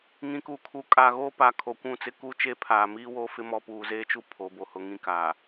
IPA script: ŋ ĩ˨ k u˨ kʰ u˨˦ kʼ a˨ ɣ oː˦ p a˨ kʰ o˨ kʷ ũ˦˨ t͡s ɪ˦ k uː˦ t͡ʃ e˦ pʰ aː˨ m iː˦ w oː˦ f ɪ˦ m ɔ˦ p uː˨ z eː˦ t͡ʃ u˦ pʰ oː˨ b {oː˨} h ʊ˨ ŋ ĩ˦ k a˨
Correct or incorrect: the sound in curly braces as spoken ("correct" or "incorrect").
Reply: incorrect